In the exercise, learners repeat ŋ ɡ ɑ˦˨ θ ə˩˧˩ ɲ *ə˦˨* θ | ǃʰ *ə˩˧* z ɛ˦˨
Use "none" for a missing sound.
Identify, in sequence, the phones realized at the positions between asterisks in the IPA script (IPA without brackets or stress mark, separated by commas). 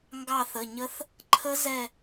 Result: ə˦˥, ə˦˥